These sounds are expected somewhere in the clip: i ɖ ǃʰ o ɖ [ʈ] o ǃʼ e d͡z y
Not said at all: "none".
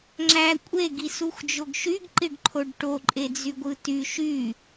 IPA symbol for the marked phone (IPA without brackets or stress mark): ʈ